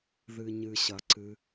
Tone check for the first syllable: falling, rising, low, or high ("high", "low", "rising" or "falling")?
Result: low